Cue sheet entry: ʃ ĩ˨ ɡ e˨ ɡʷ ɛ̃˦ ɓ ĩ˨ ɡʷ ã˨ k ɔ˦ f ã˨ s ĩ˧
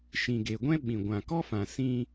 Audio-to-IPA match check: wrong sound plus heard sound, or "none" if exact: none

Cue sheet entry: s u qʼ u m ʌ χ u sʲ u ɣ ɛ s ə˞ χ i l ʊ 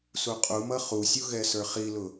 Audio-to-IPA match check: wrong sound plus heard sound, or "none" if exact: none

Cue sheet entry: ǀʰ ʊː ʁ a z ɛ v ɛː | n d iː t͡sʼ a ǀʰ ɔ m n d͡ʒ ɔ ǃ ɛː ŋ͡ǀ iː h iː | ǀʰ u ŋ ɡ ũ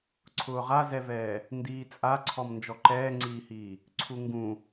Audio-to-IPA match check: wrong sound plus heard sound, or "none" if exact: none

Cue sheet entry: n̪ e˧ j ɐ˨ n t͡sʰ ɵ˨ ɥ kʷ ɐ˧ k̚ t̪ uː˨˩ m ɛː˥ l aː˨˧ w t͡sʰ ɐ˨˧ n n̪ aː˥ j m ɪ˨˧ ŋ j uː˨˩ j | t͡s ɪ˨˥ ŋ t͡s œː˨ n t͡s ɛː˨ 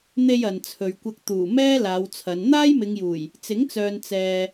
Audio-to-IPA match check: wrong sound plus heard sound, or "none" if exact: none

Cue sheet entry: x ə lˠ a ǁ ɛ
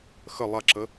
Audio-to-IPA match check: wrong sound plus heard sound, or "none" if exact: ɛ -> ə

